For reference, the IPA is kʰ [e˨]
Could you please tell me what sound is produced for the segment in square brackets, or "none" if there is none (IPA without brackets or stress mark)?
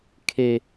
e˨